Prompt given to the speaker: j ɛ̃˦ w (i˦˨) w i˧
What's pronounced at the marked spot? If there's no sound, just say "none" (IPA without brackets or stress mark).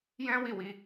i˦˨